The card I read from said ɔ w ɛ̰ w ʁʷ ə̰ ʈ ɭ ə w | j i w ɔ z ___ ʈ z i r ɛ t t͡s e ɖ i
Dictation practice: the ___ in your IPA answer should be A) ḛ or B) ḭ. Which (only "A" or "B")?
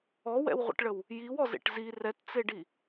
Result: A